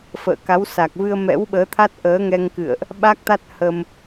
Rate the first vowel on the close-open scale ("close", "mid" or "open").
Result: mid